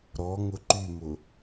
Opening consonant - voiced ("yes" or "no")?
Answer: yes